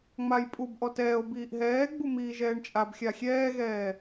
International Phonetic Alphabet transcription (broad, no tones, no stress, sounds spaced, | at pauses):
ŋ͡m a j pʼ u b ʔ ɔ t ɛː o̯ b iː ʔ ɦ ɛː ɡ͡b u m iː ʒ ɛː ɳ t͡ʃʼ a b xʲ a xʲ ɛː ɣ ɛː